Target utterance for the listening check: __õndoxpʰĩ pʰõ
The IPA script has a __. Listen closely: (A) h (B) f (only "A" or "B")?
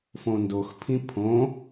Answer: B